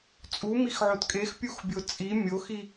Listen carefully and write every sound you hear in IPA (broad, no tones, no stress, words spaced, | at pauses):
t͡sʼumixʕot kʼexpʲuxbʲo t͡sʼi mʲoxi